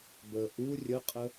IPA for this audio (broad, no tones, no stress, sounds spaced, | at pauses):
b ə ʔ u rʲ ə qʼ ə